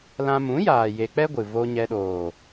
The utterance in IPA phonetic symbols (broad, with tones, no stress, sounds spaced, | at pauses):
l ã˧ m ũ˨˦ j aː˨ j e˧ k͡p ɛ˦ ɡʷ ɨ˨ v o˧ ɲ ɛ˧ ɗ oː˨